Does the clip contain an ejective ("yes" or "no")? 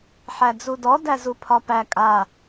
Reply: yes